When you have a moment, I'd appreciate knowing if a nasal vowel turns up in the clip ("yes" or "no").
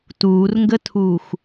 no